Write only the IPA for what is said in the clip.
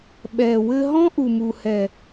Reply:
ɓ ɛ˨ w ɘ˧ ɦ ɔ̃˦ ʔ u˨ m u˨ h ɛ˨

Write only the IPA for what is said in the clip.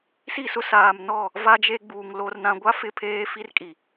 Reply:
s i˦˨ s ʊ˦ s aː˨ m n ɔ˦˨ | v a˦ d͡ʒ e˦ ɡ͡b uː˨ ŋ l o˨ r n ã˨ ɡʷ a˦ f ɪ˦˨ pʰ eː˦ f i˦ r kʼ i˨

